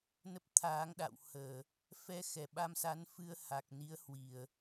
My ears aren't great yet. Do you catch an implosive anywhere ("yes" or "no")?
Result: yes